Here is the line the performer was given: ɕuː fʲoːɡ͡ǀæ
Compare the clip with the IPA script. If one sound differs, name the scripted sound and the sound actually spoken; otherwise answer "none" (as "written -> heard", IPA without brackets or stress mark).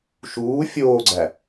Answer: ɕ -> ʃ